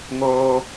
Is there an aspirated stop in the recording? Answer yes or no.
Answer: no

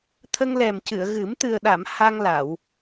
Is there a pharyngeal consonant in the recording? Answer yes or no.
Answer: no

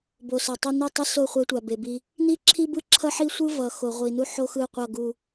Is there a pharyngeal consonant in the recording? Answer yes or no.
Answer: yes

